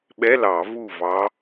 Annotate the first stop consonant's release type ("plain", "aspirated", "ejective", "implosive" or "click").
implosive